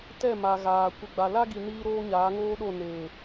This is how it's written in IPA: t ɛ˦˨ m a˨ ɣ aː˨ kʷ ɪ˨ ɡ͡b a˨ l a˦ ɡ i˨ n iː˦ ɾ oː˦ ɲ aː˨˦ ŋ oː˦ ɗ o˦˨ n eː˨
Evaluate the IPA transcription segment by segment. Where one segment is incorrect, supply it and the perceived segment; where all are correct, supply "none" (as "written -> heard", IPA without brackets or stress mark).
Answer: none